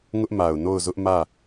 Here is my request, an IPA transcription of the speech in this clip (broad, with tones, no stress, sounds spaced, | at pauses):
ŋ ʊ˦ ʔ m a˨ ʊ̯ n o˦˨ ʊ̯ z ʊ˦ ʔ m ä˦˨